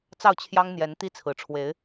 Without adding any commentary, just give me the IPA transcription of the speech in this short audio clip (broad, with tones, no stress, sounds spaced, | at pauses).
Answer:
t͡s ɑ˥˩ ʊ̯ t͡ɕʰ j ɑ˥ ŋ n̪ j ɛ˧˥ n t̪ i˥ t͡sʰ ɹ̩˨˩ ʈ͡ʂʰ w e˧˥ ɪ̯